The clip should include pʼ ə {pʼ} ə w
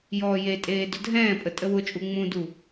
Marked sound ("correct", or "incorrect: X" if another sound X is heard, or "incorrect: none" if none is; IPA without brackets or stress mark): incorrect: tʼ